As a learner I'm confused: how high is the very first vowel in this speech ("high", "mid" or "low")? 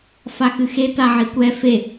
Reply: low